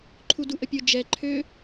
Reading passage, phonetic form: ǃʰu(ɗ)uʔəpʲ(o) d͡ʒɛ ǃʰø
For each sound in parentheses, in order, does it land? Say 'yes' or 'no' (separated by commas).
no, yes